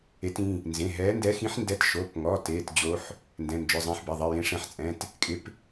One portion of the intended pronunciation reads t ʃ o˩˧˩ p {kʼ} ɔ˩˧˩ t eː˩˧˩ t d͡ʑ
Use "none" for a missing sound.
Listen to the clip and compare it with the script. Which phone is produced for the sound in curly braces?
ŋ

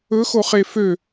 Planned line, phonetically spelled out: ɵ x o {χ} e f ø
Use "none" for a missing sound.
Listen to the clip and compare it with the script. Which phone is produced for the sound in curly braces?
χ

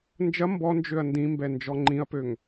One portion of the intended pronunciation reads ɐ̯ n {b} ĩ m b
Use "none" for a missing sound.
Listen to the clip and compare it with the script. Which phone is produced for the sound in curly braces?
d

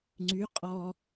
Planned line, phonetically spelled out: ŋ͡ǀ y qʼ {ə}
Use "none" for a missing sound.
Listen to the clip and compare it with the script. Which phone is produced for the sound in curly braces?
ɔ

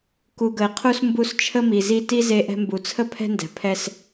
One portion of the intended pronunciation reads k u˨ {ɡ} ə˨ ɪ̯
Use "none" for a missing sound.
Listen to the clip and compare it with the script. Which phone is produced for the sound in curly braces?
ɡ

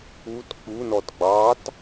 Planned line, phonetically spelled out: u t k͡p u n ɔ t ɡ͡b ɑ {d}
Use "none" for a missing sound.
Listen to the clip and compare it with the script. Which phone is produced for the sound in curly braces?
t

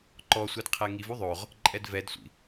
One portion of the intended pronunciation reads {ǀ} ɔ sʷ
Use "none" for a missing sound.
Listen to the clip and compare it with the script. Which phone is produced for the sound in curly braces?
ǃ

